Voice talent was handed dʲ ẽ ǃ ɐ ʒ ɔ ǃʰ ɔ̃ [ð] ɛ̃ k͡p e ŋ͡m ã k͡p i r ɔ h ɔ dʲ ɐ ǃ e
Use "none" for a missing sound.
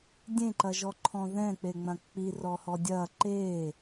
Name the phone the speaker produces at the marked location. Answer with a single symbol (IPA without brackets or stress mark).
ð